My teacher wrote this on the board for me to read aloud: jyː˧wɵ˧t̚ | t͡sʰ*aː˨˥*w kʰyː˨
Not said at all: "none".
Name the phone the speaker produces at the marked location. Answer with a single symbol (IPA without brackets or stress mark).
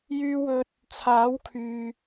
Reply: aː˨˥